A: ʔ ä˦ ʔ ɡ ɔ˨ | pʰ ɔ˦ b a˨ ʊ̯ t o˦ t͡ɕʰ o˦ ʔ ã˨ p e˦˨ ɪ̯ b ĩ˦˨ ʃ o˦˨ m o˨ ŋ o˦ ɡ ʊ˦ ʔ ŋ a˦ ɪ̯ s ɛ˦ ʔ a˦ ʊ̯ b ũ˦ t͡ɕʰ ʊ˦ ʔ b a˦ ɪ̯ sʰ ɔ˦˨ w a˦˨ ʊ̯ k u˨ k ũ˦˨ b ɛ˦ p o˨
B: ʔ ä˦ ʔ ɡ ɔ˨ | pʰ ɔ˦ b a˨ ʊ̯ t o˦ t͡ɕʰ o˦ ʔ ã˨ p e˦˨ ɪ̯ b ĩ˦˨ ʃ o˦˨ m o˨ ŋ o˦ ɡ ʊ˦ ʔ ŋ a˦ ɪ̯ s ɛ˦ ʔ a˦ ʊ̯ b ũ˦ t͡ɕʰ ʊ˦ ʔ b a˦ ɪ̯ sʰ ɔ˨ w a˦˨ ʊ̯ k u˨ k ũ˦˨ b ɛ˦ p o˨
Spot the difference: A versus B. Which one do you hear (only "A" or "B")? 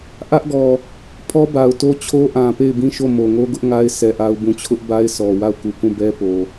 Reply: B